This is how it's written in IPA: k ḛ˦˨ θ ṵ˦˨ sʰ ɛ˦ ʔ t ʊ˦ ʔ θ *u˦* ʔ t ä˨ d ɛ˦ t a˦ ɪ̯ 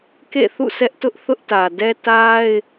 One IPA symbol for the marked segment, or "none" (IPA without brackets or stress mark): ʊ˦